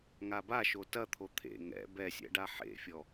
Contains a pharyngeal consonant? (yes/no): yes